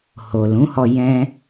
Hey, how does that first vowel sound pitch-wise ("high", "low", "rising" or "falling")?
low